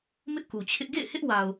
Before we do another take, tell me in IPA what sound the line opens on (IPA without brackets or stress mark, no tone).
m